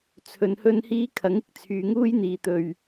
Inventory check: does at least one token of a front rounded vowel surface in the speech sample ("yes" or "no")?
yes